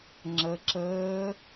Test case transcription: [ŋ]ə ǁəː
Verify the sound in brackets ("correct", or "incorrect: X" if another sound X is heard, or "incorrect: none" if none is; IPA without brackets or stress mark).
incorrect: ŋ͡ǁ